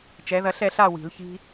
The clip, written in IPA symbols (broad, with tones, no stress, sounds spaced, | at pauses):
t͡ʃ ɛ˨˥ ð ɐ˦ ɬ ɛ˥˨ ɬ a˥˨ w i̤˨˩˦ l ç i̤˦